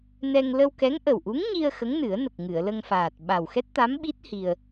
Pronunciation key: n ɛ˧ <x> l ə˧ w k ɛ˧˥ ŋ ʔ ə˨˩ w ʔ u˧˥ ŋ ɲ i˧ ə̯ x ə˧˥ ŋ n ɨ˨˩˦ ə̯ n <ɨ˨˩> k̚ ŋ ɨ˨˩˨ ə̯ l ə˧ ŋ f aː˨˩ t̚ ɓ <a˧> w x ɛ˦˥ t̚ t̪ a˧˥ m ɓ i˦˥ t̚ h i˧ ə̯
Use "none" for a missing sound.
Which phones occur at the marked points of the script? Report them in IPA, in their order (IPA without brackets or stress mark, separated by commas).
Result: ŋ, ə˨˩, a˨˩